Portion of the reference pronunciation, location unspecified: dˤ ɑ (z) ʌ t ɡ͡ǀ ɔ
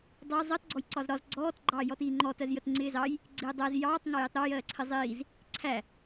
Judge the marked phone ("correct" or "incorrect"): incorrect